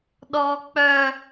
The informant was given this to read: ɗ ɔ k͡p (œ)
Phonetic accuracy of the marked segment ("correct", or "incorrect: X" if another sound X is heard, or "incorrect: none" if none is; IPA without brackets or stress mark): correct